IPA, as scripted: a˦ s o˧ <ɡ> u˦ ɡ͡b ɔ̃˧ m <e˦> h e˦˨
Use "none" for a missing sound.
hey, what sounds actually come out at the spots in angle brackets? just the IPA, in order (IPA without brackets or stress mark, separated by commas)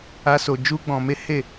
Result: d͡ʒ, e˦